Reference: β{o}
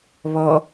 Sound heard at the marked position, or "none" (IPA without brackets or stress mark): ɔ